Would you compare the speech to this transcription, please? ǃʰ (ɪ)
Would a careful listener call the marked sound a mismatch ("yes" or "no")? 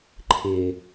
no